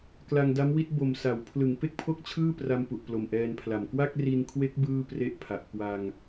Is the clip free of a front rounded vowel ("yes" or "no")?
yes